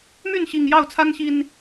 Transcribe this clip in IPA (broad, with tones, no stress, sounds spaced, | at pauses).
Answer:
m y˥˨ n ɕ i˨˩ ŋ j ɑ˥˨ ʊ̯ t͡sʰ a˦ n ɕ i˨˩ n